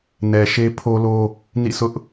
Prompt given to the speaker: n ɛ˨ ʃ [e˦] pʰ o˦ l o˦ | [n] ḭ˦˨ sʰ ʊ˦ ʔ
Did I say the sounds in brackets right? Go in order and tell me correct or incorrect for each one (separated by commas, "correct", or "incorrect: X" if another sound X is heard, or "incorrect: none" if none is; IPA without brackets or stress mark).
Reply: correct, correct